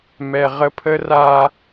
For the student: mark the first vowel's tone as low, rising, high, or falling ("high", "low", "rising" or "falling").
low